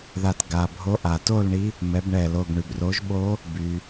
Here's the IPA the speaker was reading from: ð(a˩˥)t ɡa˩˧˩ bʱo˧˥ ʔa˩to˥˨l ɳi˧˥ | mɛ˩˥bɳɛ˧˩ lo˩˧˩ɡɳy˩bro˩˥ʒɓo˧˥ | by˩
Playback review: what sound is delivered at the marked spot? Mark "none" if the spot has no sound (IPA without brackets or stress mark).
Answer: a˧˩